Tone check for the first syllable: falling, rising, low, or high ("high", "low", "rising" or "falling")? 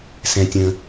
low